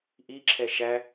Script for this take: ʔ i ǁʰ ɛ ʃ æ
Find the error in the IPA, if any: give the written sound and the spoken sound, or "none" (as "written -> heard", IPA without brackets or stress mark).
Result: none